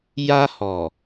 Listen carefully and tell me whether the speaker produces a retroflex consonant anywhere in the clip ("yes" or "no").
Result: no